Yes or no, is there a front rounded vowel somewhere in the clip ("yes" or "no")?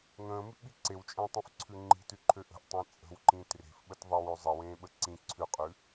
yes